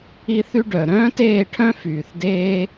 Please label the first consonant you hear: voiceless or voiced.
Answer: voiceless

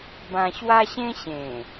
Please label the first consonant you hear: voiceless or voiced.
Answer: voiced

